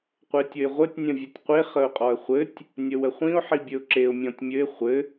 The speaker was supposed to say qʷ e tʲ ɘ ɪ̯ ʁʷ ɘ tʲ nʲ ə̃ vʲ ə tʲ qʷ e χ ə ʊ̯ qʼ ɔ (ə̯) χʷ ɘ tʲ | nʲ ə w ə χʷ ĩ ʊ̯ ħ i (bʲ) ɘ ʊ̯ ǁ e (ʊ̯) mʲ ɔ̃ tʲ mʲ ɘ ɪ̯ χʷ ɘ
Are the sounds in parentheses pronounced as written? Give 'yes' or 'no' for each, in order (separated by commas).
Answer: yes, yes, yes